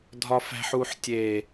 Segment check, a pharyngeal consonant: present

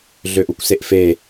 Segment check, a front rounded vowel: present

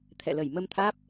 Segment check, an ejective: absent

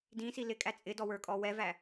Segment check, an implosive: absent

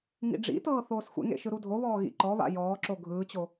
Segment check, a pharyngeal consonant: absent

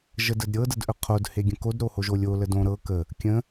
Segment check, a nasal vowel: present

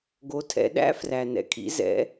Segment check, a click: absent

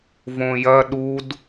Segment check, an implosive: present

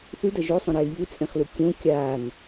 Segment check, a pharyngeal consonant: absent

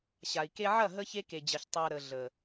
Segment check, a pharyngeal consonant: present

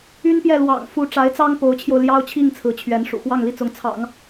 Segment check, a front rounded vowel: present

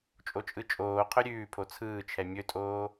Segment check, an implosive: absent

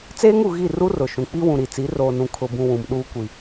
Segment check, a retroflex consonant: absent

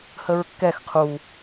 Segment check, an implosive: absent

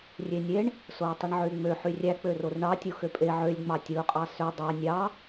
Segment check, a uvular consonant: present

